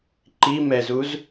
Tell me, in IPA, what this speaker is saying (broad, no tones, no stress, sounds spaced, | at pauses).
ǃ i m ɛ z u z